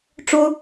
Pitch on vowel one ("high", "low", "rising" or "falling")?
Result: high